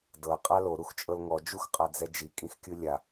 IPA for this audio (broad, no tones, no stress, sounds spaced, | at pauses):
d ɤ qʼ a l o ɾ u x t͡ʃʼ ɤ l ŋ ɔ d͡ʒ u x qʼ a d͡z ɛ d͡ʒ i kʼ ĩ x kʲ ɯ lʲ a